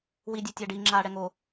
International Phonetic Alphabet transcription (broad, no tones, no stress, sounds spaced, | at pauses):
w i dʲ e tʲ a ɖ i ŋ͡ǁ aː ɽ ɛ ŋ o